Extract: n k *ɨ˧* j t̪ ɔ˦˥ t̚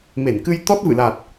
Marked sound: correct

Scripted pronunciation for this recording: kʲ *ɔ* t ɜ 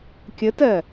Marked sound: incorrect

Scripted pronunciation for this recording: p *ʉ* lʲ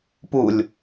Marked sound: incorrect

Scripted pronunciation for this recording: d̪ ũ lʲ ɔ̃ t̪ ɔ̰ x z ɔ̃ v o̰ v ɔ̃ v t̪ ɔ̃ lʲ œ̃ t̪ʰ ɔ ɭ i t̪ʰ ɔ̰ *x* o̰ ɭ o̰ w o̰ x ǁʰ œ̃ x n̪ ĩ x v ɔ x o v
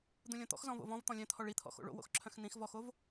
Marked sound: correct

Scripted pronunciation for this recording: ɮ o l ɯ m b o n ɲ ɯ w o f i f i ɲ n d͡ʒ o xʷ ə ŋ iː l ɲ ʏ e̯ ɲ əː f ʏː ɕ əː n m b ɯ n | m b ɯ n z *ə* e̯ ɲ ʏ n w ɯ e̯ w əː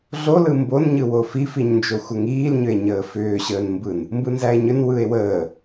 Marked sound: incorrect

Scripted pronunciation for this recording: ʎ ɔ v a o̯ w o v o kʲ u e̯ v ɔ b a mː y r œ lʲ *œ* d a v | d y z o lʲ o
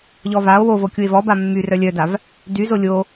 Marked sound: correct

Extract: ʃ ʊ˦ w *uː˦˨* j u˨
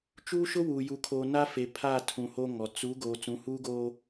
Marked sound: incorrect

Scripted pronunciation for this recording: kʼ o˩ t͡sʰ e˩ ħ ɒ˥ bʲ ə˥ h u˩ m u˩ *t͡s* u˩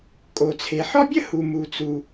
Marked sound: correct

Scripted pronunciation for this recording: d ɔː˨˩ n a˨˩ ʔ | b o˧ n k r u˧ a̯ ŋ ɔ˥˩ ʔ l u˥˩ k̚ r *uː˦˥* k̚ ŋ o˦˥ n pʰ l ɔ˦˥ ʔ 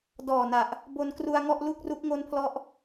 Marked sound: incorrect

